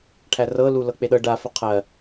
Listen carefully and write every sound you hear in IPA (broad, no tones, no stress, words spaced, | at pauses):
ʈʰærɤ lulɤk͡peɗɤ ɖa fəqʰɜ